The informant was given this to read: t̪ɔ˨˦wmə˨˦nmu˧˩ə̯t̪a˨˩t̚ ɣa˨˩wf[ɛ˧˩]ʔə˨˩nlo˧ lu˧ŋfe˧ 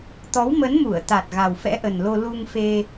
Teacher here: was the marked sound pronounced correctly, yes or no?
no